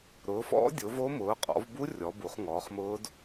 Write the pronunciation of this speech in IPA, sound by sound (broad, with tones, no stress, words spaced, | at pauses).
ɾʊː˨˦fɔ̰˦˥ dʲʊ˨˦vo˦˥mʊː˨˦qʼɔ̰˨˦v bu˦˥ rʲɔ˨˦bu˨˦χŋɔː˨˦χmʊː˦˥d